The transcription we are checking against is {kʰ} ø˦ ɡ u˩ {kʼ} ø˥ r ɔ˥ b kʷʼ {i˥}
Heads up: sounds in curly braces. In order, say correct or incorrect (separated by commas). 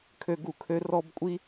correct, incorrect, correct